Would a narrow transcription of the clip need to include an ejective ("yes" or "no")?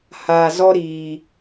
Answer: no